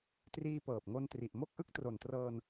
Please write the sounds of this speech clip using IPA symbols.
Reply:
triː˧pɤː˨˩p̚ŋo˧n tri˨˩ʔmo˥˩k̚ʔɯ˥˩k̚ tro˨˩ntrɤː˧n

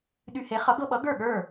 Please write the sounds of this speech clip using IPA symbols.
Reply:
ɗy˧he˩˥ χʌ˩˥ɡɤ˧ɓʌ˩˥ ɡə˞˥˩ɠə˞˥˩

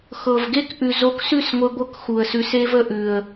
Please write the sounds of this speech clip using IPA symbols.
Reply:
xɤ˨vɡe˦kʔʉ˨ zo˧ksʉ˦˨sŋʷɘ˧ɡʷɤ˧k xu˨ə̯sʉ˧s e˦v ə˧ʔʉ˨ə̯

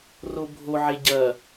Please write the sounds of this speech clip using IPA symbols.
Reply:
robʱoʕe ɟɐ

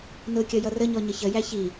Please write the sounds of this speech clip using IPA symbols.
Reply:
nʊkʲʌ jʌrəɲɔ ɲəçəjæ çi

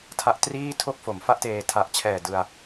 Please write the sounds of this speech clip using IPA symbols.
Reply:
tʰa˦˥ʔtriː˥˩tʰo˥˩k̚ fo˩˦mfa˥˩ʔteː˧ tʰa˨˩ʔt͡ɕʰɛː˨˩ dɯ˧a̯

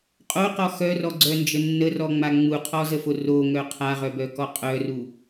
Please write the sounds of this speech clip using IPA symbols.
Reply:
qʼoqɔ xœrɔɡ͡ǀœnd͡ʒə nːərɔŋ͡ma ŋ͡muqʰɔzəfo roŋœ qʰaʁœbœkɔ qʼœru

